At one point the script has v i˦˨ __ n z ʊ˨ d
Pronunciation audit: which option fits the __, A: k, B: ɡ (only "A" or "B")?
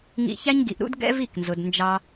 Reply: A